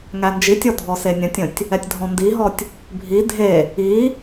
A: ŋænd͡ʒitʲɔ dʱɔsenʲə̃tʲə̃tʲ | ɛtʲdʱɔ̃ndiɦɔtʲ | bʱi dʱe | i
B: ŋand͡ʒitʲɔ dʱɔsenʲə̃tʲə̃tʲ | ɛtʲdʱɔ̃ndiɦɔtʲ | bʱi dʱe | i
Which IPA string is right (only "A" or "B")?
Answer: A